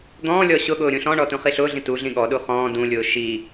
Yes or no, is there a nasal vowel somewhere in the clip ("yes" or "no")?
yes